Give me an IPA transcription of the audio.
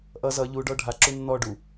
ʔ ʌ z ʌ ʎ u ɖ ɔ ɖʱ a ǁ u nː ɔ ɖ u

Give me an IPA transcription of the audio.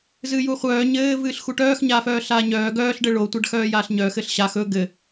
z ɨː j u χʷ œː ɲ ɘː v ɨː ɬ x u ʈ œː x ɲ aː f œː ɬ aː ɲ œː ɡ œː ɬ ɖ ɘ ɭ o tʷ a ɖ x œː j aː ɬ ɲ œ x ɘ ɬ ɕ a x ɵ ɡ ɘ

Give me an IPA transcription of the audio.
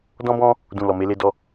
d ɔ̃˦ b ɔ̃˦ | d ũ˨ l ɔ˨ m e˧ l e˧ d ɔ˧

